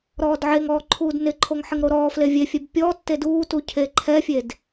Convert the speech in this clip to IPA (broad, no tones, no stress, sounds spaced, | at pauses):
ɾ ɔː d ʕ e ŋ ɔː ǃʰ uː d n ɪ ǃʰ o ŋ ħ ɪ ŋ ɾ o ɾ ɔː f l e vʲ e fʲ ɛ b pʲ ɔ tː e d uː t u cʰ e ǃʰ ɛ fʲ e d